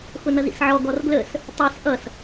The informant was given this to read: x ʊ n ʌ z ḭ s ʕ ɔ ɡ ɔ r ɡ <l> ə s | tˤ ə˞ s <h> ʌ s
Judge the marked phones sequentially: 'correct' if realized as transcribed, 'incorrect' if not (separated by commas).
correct, incorrect